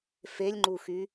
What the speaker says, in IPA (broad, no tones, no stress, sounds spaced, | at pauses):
f e lʲ ŋ͡ǃ u x y